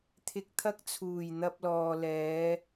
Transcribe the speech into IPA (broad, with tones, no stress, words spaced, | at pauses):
t̪ʰɪ˧k̚t̪ʰɐ˥k̚ t͡sʰuː˨˩jn̪ɐ˧p̚lɔː˨ lɛː˨˧